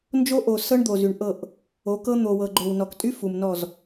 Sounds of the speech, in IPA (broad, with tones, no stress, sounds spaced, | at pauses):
n d͡ʒ o˦ ʔ o˨ s ɤ˦ ɳ d̪ o˨ z y˨ ɳ ʔ ɤ˦˨ ʔ | o˨˦ k ɤ˦ n̪ o˨ w ɤ˨ ɡ͡ǃ o˨ w n ɔ˨ k tʼ y˦ f u˨ m n ɔ˦˨ z